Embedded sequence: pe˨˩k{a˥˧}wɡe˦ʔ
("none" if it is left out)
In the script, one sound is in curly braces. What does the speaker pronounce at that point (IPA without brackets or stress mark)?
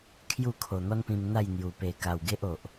a˨˩